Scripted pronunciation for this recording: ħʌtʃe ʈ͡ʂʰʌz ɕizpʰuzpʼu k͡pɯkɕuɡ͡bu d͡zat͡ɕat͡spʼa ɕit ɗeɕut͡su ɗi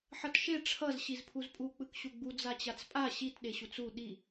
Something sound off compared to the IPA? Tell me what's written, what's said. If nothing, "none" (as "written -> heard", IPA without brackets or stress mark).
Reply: none